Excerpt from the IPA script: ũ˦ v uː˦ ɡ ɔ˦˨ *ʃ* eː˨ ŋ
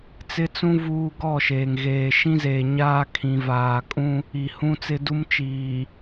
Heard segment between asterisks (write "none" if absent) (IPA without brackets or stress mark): ʃ